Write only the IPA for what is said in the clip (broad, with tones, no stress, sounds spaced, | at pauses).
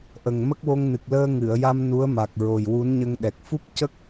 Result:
ʔ ə˨˩ ŋ m ə˦˥ k̚ w o˧ ŋ n ɨ˨˩ k̚ l əː˧ ŋ ɨ˨˩˨ ə̯ j a˧ m n u˧˥ ə̯ m a˨˩ k̚ ɹ o˨˩ j w u˧˥ n ɲ ə˧ ŋ ɗ ɛ˨˩ k̚ f u˦˥ k̚ c ə˦˥ k̚